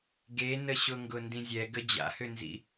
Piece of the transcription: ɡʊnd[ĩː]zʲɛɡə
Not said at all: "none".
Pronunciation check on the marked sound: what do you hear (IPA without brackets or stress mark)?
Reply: ĩ